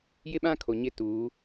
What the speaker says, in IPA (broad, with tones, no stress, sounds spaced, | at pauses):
j ɪ˦ ɓ ã˦ kʰ o˨ ɲ ɪ˦ t uː˨˦